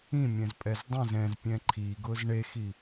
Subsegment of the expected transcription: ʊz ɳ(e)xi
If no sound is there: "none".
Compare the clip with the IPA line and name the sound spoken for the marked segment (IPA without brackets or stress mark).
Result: e